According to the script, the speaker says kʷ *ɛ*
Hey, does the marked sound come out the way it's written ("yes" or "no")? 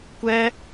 yes